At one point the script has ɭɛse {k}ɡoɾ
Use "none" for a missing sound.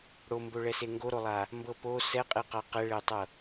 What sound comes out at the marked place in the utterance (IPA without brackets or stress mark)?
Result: ŋ